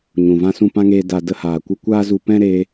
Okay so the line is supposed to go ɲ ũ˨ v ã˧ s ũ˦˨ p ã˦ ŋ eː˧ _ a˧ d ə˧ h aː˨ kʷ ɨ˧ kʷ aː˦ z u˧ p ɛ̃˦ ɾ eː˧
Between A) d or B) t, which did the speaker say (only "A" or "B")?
A